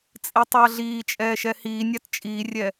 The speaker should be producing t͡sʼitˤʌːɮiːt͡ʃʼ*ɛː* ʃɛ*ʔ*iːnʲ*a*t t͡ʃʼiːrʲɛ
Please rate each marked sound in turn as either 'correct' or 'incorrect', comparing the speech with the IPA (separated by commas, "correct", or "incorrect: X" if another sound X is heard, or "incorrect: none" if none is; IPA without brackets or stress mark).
correct, incorrect: h, correct